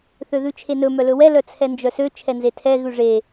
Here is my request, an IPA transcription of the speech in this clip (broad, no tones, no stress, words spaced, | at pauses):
θøðʉt͡ʃʰenɵ mœlɵwɛ lœt͡sʰɛnd͡ʒœsø t͡ʃʰɛnzetʰɛ ɣʉʐe